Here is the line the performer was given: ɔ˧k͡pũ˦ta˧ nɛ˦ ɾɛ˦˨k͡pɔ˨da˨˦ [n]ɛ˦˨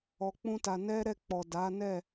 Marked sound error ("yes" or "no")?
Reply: no